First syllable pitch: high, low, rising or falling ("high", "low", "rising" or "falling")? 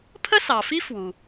high